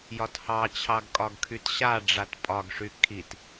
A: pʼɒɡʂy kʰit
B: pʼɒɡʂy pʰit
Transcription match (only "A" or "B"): A